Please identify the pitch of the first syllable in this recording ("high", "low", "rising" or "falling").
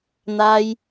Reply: high